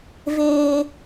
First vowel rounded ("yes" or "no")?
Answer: no